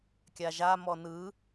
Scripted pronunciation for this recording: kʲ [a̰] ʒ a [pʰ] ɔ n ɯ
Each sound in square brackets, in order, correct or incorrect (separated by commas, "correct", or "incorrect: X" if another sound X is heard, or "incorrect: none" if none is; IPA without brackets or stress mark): incorrect: a, incorrect: m